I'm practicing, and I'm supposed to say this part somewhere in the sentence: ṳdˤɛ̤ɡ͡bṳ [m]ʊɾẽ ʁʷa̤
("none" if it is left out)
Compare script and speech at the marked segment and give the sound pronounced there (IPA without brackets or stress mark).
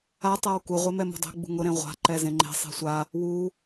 ŋ